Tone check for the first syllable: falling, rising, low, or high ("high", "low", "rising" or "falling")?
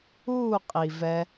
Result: falling